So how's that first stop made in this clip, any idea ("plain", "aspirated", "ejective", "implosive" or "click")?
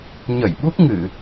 implosive